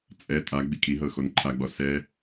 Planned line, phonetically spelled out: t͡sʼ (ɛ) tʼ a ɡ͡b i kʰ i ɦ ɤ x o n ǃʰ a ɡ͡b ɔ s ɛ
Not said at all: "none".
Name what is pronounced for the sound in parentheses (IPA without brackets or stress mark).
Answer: ɛ